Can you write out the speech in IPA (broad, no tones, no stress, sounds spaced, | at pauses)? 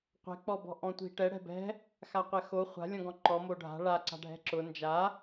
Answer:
qʷ ɛ̤ k͡p ɔ b ɔ̤ ʔ ɔ̃ tʷ i̤ ʈ ɛ ɽ ɛ̤ b ɛ̤ | x a qʷ ɛ x o χʷ a̤ lʲ ɔ̃ ɡ ɔ̃ ǃ ɔ m o ɖʱ a̤ ɭ a ǀ a̤ ɖʱ ɛ̤ ǁ ʊ n d͡ʒ a